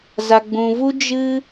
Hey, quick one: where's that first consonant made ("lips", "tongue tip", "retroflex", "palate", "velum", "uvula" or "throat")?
tongue tip